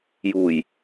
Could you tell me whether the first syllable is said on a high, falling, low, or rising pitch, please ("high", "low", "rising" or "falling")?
low